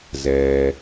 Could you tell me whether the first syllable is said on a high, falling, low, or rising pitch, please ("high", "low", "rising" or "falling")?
low